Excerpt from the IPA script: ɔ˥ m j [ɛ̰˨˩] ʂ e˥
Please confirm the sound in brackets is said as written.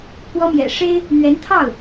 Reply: yes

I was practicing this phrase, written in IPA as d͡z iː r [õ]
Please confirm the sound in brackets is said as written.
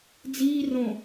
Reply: yes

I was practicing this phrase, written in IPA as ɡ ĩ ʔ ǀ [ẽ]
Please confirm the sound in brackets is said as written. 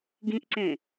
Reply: yes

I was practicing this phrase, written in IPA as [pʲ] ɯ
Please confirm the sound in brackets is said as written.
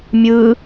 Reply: no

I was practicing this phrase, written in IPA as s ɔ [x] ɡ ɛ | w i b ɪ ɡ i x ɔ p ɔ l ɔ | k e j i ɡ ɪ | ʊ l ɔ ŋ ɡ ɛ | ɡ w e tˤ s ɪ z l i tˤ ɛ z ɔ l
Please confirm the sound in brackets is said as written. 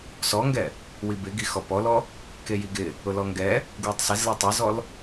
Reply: no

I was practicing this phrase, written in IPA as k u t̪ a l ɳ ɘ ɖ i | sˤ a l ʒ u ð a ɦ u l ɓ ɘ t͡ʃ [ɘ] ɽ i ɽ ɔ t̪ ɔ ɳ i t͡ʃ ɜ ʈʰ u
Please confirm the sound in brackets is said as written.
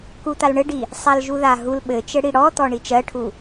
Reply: yes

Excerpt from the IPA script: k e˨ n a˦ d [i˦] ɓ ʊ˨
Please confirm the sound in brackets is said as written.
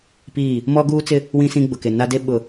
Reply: no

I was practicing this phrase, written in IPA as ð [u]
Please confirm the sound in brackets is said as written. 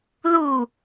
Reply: yes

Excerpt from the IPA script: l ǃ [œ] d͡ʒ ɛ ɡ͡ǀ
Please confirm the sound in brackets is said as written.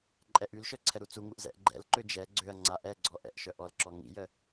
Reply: no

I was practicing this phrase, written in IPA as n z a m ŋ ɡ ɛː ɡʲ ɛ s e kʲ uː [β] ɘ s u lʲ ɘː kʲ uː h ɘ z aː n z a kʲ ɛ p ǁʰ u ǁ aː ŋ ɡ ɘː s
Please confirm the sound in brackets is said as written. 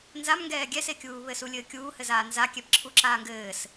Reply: yes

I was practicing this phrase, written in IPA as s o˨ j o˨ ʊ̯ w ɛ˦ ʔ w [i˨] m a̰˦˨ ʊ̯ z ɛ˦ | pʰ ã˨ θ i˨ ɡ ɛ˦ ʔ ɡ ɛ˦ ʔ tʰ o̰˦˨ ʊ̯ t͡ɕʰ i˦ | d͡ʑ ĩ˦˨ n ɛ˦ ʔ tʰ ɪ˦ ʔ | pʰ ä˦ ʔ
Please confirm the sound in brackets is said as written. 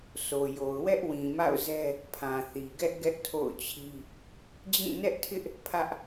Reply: no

